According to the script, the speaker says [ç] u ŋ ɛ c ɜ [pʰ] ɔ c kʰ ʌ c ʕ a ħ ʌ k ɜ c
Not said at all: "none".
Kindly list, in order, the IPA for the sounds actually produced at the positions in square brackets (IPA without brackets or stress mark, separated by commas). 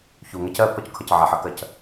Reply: ç, pʰ